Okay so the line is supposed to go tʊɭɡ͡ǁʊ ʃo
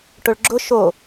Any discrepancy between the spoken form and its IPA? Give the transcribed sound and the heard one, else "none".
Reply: t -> ʈ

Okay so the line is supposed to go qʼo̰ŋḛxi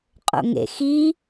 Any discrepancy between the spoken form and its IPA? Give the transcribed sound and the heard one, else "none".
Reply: none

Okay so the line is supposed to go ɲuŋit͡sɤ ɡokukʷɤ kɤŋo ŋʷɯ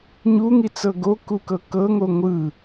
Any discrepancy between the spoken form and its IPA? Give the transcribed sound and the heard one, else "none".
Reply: kʷ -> k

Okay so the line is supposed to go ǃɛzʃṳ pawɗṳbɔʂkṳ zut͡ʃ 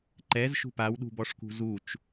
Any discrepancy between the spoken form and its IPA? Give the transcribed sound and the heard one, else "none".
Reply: none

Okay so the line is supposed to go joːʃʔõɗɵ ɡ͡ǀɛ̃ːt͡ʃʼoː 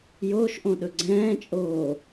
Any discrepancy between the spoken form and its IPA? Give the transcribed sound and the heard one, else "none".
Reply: none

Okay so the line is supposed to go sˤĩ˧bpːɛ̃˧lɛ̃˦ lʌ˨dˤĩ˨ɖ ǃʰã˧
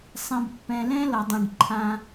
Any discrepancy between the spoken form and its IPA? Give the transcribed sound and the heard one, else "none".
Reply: none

